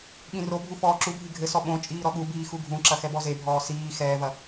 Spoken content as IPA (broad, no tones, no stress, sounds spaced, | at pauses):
ɠ ĩ r o bʱ u f ɔː ǁ u bʱ i ɡʱ ɘ s ɔ ɓ õ t͡ʃʼ iː ɾ ɔ ɠ u b iː x u ɡʱ ũ ǁ ɐ x ɛ b ɔ z e bʱ ɔː s iː x ɛː v ɐ